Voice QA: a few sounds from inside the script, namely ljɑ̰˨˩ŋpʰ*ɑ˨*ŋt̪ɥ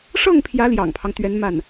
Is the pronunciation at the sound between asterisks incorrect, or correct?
incorrect